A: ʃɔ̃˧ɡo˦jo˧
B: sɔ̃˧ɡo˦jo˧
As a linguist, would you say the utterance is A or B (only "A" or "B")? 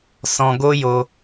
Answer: B